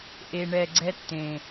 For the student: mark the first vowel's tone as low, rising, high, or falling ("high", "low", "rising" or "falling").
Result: low